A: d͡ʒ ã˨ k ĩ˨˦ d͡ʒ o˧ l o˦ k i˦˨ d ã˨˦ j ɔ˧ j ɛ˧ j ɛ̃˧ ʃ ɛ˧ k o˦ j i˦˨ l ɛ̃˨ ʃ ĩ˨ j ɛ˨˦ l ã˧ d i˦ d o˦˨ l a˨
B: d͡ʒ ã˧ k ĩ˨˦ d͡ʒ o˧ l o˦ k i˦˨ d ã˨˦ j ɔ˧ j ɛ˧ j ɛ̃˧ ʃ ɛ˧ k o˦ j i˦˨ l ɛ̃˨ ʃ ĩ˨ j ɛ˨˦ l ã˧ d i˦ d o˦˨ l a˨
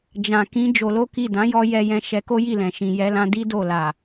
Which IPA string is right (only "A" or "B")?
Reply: A